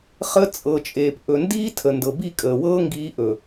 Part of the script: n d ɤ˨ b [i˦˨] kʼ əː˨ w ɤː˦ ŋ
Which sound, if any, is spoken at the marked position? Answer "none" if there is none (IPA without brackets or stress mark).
i˦˨